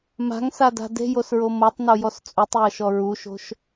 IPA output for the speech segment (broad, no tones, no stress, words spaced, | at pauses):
ma̤ŋsada̤ de̤josɹo motˤnojɔs t͡sʼutˤjɤʃɔ ɹuʃo̤ʃ